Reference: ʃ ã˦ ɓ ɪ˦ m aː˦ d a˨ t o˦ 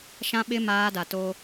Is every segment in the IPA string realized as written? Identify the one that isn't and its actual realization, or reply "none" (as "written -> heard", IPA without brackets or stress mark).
none